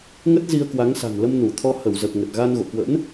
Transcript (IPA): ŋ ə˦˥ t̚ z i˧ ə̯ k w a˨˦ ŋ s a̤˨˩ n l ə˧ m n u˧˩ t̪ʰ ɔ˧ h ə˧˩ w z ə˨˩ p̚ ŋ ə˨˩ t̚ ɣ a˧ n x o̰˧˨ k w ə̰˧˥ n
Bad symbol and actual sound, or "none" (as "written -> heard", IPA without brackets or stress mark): x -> ɣ